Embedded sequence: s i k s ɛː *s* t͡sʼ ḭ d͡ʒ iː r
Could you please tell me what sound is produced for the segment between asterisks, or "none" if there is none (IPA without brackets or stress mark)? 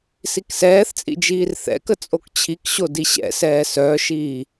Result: θ